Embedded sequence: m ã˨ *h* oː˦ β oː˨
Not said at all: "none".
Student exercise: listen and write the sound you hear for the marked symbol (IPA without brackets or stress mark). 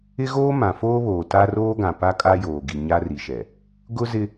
f